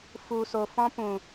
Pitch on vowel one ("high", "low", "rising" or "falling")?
low